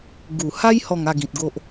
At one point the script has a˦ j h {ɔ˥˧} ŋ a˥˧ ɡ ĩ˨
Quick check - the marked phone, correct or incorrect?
correct